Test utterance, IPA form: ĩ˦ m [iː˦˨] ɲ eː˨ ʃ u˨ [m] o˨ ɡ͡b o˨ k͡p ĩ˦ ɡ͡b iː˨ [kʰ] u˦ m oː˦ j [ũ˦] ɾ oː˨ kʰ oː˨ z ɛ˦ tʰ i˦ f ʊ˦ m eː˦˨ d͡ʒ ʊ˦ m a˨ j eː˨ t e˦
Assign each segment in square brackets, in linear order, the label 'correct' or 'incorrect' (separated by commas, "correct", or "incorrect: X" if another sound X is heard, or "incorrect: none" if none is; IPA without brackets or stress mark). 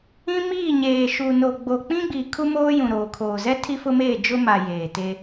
correct, incorrect: n, correct, incorrect: ũ˨